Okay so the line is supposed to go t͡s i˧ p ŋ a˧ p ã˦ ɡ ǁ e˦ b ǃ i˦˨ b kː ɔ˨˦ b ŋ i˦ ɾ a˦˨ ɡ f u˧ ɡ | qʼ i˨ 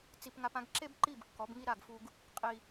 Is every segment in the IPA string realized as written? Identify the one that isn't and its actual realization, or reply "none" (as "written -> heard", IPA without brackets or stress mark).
none